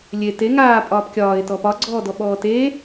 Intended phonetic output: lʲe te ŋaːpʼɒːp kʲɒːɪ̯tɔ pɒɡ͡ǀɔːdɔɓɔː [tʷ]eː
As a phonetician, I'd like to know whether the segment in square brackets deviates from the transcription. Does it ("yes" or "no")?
yes